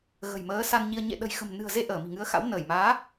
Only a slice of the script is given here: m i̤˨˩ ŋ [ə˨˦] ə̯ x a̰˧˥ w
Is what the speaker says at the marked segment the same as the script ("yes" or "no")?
no